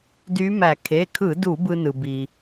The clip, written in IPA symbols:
d y˧˥ m æ˧˩˧ kʰ e˩˧˩ kʰ ɯ˧˩˧ d u˧˩˧ b ɯ˧ n ɯ˩ b i˩

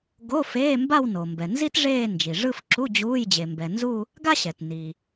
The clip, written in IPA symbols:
ɡ o˧˥˧ f eː˧˥˧ m b a˥˧ w n o˩ m b ɛ˩ n z i˥ t ʐ eː˥˧ n d͡ʒ i˩ ʐ ɯ˥˧ f ǁ u˧˥˧ d͡ʑ uː˧˥˧ j d͡ʑ e˩ m b ɛ˩ n z u˥˧ | ɡ a˥ ɕ ɛ˩ t n i˩

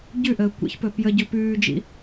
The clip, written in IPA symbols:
ɟ ʉ ʔ əː kʷ ḭ ç p ɵ p j ə ɟ ɵ p ʉː d͡ʒ ḭ

